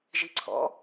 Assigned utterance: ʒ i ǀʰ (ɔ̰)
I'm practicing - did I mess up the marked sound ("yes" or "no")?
no